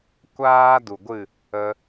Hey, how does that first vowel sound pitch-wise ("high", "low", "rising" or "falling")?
high